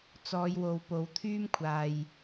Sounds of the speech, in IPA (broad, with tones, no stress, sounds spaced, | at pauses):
t͡s ɔː˨˧ j w o˨ w p o˨˧ w t̪ʰ yː˥ m kʷʰ aː˨ j